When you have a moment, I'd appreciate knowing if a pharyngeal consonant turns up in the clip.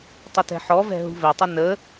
yes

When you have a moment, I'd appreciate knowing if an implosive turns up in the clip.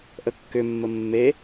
no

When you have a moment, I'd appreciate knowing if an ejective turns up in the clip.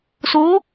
no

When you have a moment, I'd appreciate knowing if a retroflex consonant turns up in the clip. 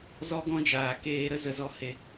no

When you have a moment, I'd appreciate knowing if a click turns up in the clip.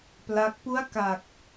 no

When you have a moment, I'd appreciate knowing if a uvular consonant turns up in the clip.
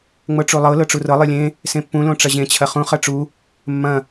yes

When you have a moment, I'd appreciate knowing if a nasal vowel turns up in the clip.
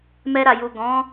yes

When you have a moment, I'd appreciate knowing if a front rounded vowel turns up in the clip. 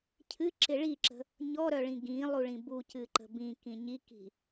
yes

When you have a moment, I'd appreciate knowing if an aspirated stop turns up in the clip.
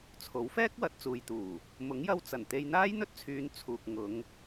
yes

